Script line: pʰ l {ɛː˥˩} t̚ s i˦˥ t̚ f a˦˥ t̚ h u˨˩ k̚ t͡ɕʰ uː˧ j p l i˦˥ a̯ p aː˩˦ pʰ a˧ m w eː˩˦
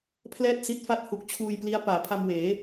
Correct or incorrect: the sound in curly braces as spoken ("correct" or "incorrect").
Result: correct